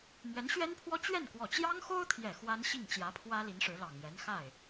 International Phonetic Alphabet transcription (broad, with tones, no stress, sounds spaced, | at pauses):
m ɥ ɛ˧˥ n ɕ ɥ ɛ˥ n pʰ w ɔ˥ t͡ɕ ɥ ɛ˥˩ n k w ɔ˨˩ t͡ɕ j ɑ˥ ŋ x o˥ ʊ̯ t̪ʰ j ɛ˨˩ x w a˥ n ɕ i˥˩ ŋ t͡ɕ j ä˧˥ pʰ w ä˥ l i˧˥ n ʂ ɻ̩˧˥ l ɑ˨˩ ŋ ɥ ɛ˧˥ n x a˥˩ ɪ̯